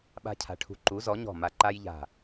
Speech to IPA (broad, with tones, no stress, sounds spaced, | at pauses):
ɓ a̤˦ cʰ a̤˨˥ ʈʰ ṳ˨˥ ǃ u˨˥ z ɔ˨˥ ɲ ɔ̤˦˨ m a˦ ǃ a˦ j ʎ a̤˦˨